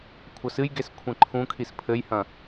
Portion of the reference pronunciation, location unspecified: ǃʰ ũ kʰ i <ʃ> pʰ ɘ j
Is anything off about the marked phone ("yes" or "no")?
yes